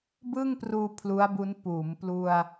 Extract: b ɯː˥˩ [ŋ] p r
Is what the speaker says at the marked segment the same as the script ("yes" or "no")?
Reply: yes